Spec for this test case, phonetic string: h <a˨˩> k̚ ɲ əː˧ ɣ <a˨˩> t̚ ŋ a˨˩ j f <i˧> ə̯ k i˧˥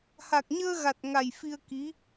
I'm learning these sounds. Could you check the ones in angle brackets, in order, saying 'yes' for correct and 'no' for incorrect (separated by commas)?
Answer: yes, yes, yes